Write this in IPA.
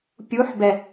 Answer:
pʲ u ħ b ɛ

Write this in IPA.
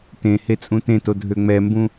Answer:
t ẽ h e t͡sʼ ũ t ẽ t o dʱ ø ŋ͡m ɛ m b ũ

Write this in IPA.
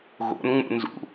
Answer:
ɣ o̰ n ŋ͡m ṵ n z ṵ

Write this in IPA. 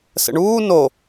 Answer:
s ə̰ ɳ uː n o

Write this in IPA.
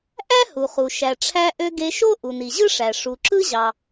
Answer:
ʔ æ˥ h u˩ χ u˩ ʃ æ˩ ʈ͡ʂʰ æ˧ ʔ ø˧ ɡ e˧ ʃ o˥ ʔ u˩ n i˩ ʑ ɯ˥ ʂ æ˩ ʂ u˩ ǁ ɯ˥ ʑ ɑ˩

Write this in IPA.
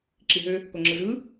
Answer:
ǁ i ɦ ø | k o ŋ͡ǁ ɯ z ɯ

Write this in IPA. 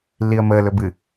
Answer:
lː i ə̯ m əː l ɵ b ɨ

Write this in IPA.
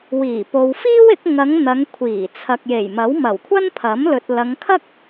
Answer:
w iː˨˩ p o˨ w f iː˥ w ɪ˨˥ k̚ ŋ ɐ˨˧ ŋ n̪ ɐ˨˧ ŋ kʷʰ iː˨˩ t͡sʰ ɐ˨ k̚ j e˨˩ j m ɐ˨˥ w m ɐ˨˩ w kʷʰ ɐ˥ n pʰ ɐ˨˥ m l ɵ˨ t̚ l ɐ˨˧ ŋ kʰ ɐ˥ k̚

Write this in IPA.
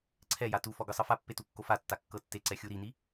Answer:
ǀʰ ɛ j a t u f ɔ ɡ ɯ sˤ ɤ f a pː e t u kː o f a tː a kː ɤ tː e ǀ ɛ xʲ u ɾ i n i

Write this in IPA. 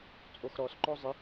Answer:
t͡sʼ o x ɾ ɔ s ǃ ɔ zˤ ɪ

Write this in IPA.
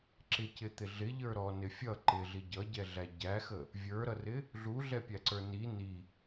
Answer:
ǁ ɪ c ɪ t̪ ɪ ɮ ɪ ʎ ə˞ ɾ ɔ n ɪ fʲ ʌ ǃ ɪ ɮ i ɟ ʌ ɟ ɛ ɮ æ ɟ æ x ə | vʲ ə˞ ɾ ʌ r ɪ | ɮ u ɮ ɛ pʲ æ ǀ ə˞ n i n i

